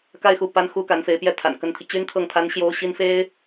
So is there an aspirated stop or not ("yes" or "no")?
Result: yes